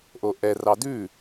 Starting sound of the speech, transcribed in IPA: ʔ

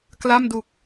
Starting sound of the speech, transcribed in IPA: k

